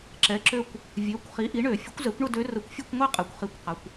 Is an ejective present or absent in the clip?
present